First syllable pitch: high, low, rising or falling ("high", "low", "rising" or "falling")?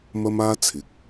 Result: high